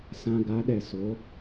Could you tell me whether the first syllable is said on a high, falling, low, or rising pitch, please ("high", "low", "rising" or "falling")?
low